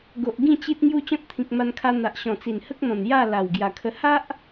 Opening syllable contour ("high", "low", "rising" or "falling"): low